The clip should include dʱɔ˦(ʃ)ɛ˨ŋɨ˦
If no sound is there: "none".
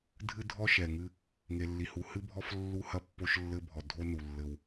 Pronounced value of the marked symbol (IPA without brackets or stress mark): ʃ